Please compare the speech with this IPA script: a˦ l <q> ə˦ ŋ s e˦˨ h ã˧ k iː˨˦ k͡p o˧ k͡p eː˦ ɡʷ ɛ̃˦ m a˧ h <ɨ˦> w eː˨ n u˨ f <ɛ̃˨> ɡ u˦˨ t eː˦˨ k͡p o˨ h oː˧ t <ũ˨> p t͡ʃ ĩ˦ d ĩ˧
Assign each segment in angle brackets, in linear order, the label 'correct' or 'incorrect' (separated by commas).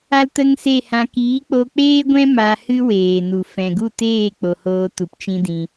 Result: incorrect, correct, correct, incorrect